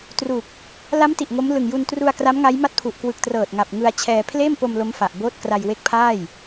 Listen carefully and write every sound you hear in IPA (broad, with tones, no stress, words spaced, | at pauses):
tru˨˩k̚ | la˦˥m ti˨˩ʔŋo˦˥mlɯ˨˩ŋ ju˧ntru˧a̯ kra˦˥mŋa˦˥jma˥˩t̚pʰu˨˩ʔ kwɯ˨˩k̚trɤː˨˩t̚ ŋa˨˩p̚ŋɯ˧a̯t͡ɕʰɛː˧ pʰleː˥˩mpo˧m lo˦˥mfa˨˩ʔboː˥˩t̚kra˧j we˦˥k̚pʰaː˥˩j